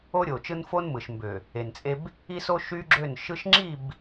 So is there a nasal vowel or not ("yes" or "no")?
no